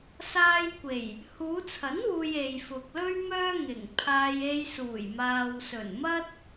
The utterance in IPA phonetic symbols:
s aː˧ j kʷ e˨˩ j | h uː˨˧ t͡sʰ ɐ˨˥ n w uː˨ j e˨ j f ʊ˨ k̚ l ɵ˥ ɥ m œː˧ ŋ ɪ˨˩ ŋ pʰ aː˧ j e˧ j s uː˨˩ j m aː˨ w s ɵ˨˩ n m ɐ˥ t̚

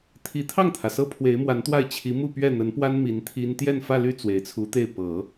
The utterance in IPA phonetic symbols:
t̪ʰ i˧˥ t̪ʰ ɑ˥˩ ŋ t̪ʰ ä˩ s ɤ˥ pʰ w e˧˥ ɪ̯ m w a˧˥ n t̪ w a˥˩ ɪ̯ t͡ɕʰ i˧˥ m u˥˧ p ɥ ɛ˥˩ n̪ ə˧˥ n p w a˥ n m i˧˥ n t̪ʰ i˥ n t̪ j ɛ˥˧ n f ä˥˧ l y˥˩ t͡s w e˨˩ ɪ̯ t͡sʰ u˧˥ t̪ e˥˩ ɪ̯ p ɤ˨˩˦

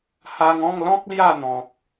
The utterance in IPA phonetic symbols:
h a˧ ŋ ɔ̃˥˧ ŋ l ɔ̃˦ k̚ l j a˥˧ n̪ ɔ̃˨ k̚

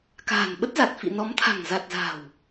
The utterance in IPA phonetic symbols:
k a̤ː˨˩ n ɓ ə˦˥ t̚ z a˨˩ t̚ f ḭ˧˨ n ɔ˨˦ m t̪ʰ a̤˨˩ ŋ z a˨˩ t̚ z a̤˨˩ w

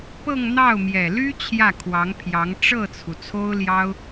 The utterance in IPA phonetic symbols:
p ɤ˥˧ ŋ n̪ ɑ˥˩ ʊ̯ m j ɛ˨˩ l y˥ t͡ɕʰ j ä˥˩ kʰ w ɑ˧˥ ŋ pʰ j ɑ˧˥ ŋ ʈ͡ʂ ɤ˥˩ t͡sʰ u˩ t͡sʰ o˥ ʊ̯ l j ɑ˥ ʊ̯

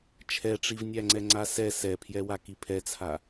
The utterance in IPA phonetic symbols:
t͡ʃʰ ɛ ʈ͡ʂ i v nʲ æ ŋ͡ǀ ɛ ŋ͡ǀ a s ɛ s ɛ pʰ j ɛ w a k i pʰ ɛ t͡sʰ a

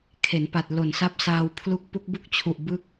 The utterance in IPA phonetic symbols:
kʰ e˩˦ n p a˨˩ t̚ l o˨˩ n s a˦˥ p̚ s aː˧ w pʰ l u˦˥ k̚ p u˦˥ k̚ b u˥˩ k̚ t͡ɕʰ u˨˩ ʔ b ɯ˦˥ k̚

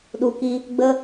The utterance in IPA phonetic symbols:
ɗ u˨ k i˧ | ɡ͡b ə˦

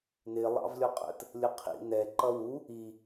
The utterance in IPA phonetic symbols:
n ɪ lˠ ɑ̰ v lʲ ɔ qʼ ə̰ t | lʲ ə qʰ ḭ n ɛ ǃ ʌ w u | i

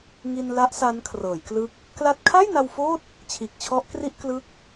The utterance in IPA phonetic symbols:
ŋ i˧ n l a˦˥ ʔ s a˦˥ n kʰ r ɤː˩˦ j k l ɯ˦˥ k̚ | k l a˥˩ t̚ kʰ a˥˩ j n a˧ w f oː˥˩ t̚ | t͡ɕʰ iː˨˩ k̚ t͡ɕʰ ɔ˦˥ ʔ k r i˥˩ ʔ k l ɯ˦˥ k̚

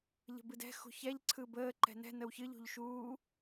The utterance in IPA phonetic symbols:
ʎ ə̤ b ɨ d ɛ̤ x ṳ ç ɛ ʎ ǀʰ ɯ b əː ǃ ɛ̤ n ɛ̤ n ə w ç ɨ ʎ ṳ ʎ ʃ uː

